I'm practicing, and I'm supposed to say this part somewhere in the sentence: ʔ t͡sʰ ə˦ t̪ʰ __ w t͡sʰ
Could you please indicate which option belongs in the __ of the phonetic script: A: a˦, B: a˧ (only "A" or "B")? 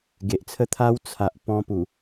A